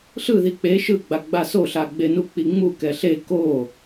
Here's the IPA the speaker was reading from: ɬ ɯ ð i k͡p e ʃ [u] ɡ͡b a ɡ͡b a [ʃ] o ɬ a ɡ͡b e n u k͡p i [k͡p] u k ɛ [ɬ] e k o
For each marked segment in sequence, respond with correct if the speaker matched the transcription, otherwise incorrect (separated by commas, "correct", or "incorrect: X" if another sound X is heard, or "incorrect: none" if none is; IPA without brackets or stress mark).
incorrect: ɯ, incorrect: s, incorrect: ŋ͡m, correct